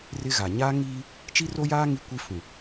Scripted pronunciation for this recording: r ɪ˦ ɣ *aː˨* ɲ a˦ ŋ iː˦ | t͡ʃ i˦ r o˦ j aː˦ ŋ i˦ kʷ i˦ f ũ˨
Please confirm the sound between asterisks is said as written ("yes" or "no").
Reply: no